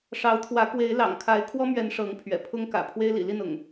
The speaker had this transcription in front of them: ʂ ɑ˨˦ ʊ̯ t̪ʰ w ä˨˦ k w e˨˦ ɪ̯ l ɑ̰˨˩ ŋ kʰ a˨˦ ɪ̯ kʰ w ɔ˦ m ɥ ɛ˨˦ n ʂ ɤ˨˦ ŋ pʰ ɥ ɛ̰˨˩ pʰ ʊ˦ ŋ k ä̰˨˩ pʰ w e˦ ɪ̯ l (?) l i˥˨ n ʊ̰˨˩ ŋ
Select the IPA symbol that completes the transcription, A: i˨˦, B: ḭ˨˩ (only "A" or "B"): B